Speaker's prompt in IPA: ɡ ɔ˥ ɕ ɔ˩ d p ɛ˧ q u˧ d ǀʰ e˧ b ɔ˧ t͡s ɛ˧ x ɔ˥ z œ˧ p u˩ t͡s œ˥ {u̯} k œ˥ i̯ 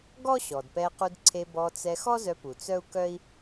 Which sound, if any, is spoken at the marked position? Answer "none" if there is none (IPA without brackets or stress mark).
u̯